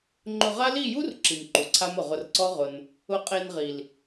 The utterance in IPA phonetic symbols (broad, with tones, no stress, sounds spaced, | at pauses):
ŋ͡ǃ ʊ˧ ʁ a˦ l i˦˨ j u˦ r ǁ i˨ m ǃ u˨ ǀʰ a˦ m ʊ˨ ʁ ʊ˧ r ǀ ɔ˦ ʁ ʊ˧ n | ʊ˧ qʼ e˧ n ʁ i˨ l